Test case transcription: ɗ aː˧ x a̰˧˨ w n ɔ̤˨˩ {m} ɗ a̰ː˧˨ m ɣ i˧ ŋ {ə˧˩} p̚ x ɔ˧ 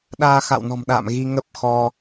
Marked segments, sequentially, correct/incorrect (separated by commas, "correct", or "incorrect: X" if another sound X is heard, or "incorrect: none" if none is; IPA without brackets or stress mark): correct, incorrect: ə˦˥